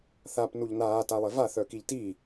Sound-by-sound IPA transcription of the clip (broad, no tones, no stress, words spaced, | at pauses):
θap nuʎnaː talˠeva θœkiʎti